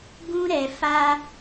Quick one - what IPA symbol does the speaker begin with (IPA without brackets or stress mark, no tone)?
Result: ɡ